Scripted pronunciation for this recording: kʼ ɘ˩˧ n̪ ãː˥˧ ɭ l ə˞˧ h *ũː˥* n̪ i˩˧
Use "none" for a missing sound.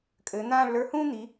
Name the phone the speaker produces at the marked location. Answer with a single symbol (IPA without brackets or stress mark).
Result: ũː˥